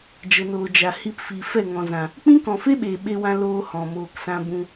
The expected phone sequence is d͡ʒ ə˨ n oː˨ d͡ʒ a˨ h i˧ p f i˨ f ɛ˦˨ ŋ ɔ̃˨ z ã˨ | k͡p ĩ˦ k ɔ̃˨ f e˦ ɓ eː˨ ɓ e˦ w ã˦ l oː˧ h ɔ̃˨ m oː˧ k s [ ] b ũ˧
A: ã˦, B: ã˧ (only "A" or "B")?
A